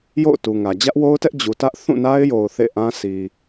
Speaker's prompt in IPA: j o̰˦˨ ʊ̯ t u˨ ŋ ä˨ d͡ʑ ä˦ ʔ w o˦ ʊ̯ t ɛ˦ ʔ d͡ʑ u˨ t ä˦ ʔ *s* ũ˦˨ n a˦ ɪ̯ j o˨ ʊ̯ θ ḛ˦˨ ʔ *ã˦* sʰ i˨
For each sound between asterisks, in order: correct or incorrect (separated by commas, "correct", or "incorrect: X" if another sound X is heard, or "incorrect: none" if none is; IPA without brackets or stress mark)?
incorrect: θ, correct